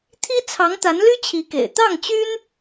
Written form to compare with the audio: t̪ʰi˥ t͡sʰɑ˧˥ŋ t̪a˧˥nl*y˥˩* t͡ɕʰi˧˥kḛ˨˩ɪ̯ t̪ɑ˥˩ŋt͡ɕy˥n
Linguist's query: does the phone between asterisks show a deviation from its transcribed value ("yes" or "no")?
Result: yes